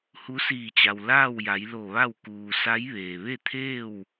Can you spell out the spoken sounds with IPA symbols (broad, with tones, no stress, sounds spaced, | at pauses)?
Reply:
h u˧˥ s iː˧˩ t͡ɕ a˩ w l aː˥˨ w j a˩˧ j l o˧˩ ʋ a˥˨ w k uː˩ s a˧˥ j ʋ eː˩ ʋ e˥˨ t̪ʰ eː˥˨ w